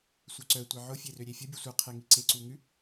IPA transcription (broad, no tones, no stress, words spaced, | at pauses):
sʷœǀœ tʷeʕʊ fʲerøɾʲefʲə bʲʉsʷe qʰeŋiǀe ǀuŋʉ